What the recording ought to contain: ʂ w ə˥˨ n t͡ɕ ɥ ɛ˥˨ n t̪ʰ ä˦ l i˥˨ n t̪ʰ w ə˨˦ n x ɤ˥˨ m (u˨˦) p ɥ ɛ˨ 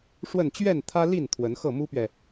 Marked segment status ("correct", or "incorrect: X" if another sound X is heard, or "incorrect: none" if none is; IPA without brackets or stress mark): incorrect: u˦